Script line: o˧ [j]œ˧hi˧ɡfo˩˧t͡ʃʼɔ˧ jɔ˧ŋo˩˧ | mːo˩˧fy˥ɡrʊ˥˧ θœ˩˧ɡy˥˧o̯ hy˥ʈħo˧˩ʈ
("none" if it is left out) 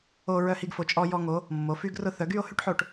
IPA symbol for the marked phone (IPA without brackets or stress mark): ɹ